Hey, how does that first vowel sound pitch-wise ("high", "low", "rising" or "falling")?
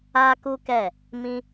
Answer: high